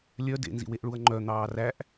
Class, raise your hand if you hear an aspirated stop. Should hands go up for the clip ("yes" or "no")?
no